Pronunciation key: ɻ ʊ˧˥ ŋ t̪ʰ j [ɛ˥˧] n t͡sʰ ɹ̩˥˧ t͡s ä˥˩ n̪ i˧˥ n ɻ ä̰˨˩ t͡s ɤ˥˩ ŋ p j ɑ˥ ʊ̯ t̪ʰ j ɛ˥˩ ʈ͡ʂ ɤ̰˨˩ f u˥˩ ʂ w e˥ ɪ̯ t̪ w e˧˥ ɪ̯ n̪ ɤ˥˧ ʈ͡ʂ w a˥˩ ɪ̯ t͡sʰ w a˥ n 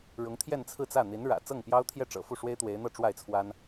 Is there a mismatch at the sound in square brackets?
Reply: no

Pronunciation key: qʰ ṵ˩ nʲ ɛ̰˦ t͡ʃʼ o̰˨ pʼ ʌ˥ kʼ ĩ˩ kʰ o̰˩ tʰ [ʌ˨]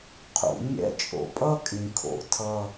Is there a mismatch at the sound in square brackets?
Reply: no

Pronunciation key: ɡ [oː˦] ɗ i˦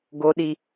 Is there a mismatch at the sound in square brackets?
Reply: yes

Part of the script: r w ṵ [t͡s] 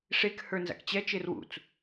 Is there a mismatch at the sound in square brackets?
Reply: no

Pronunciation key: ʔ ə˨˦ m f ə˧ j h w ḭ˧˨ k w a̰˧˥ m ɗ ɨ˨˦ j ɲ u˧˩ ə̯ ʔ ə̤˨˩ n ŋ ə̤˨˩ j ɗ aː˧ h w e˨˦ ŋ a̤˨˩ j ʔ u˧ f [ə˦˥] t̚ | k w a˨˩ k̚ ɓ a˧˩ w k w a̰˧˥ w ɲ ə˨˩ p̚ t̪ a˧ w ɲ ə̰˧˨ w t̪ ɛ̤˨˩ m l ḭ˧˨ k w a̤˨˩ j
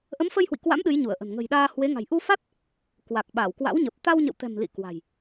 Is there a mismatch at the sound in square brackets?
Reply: yes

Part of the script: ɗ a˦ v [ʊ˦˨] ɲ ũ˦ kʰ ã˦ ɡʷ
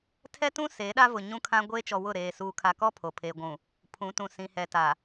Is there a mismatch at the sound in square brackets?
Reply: yes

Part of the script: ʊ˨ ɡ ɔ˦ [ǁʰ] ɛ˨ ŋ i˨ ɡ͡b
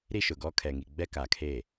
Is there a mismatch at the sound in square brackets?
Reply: yes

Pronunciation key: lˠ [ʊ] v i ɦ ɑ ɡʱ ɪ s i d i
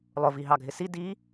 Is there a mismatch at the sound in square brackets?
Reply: no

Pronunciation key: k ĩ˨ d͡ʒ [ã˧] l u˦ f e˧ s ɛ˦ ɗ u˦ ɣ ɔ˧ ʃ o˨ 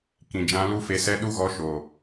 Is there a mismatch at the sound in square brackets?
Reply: no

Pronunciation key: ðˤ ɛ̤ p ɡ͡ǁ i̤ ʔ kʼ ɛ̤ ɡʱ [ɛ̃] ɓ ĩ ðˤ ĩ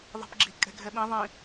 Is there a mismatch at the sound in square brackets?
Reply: yes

